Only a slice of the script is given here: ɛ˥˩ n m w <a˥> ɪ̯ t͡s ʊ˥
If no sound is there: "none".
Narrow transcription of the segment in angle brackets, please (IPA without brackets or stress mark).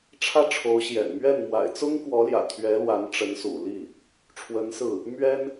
a̰˨˩